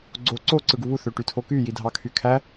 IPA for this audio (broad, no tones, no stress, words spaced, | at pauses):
ɡ͡ǀo ǀo ǀɯɡuβu θøʈytʰoky jidʱɑkʰykʰæ